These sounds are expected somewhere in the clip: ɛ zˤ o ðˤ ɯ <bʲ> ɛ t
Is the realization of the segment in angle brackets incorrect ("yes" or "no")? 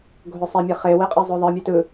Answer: yes